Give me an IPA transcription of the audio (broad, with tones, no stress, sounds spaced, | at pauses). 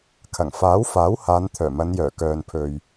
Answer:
kʰ ɐ˨˩ ŋ f aː˨˥ w f aː˨˥ w h aː˨˧ n t̪ʰ œː˨˩ m ɐ˨˧ n j œː˨˩ k œː˨ n pʰ ɵ˨ ɥ